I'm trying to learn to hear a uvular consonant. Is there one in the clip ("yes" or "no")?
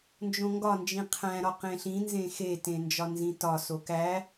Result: yes